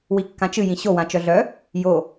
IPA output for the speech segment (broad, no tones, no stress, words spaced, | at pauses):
wikːãt͡ʃɨ jĩɕowã t͡ʃœɮœ | jo